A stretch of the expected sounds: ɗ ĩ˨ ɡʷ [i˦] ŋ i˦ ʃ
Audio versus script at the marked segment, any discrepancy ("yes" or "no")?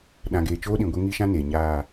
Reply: yes